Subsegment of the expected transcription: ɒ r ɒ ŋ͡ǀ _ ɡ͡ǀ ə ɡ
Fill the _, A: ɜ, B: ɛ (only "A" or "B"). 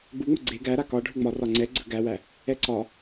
B